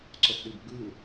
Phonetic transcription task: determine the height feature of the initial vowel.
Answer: mid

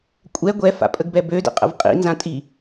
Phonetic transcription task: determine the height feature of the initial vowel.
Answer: mid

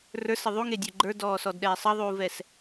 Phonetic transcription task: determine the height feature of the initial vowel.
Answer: mid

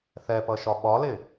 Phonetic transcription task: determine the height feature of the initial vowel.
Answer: mid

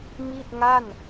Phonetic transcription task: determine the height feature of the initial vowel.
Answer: high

